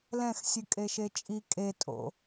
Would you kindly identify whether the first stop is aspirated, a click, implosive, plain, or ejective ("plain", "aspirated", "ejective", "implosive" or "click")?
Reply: ejective